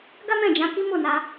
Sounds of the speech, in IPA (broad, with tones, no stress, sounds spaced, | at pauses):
ɡ a˦ m ɛ̃˦˨ d͡ʒ ã˧ k i˦ m o˦˨ n a˧